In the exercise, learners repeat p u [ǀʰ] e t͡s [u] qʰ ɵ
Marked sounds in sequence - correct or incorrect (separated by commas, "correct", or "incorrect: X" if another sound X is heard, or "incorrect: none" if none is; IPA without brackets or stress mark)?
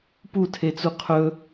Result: incorrect: tʰ, correct